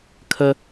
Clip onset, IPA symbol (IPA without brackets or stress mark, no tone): kʰ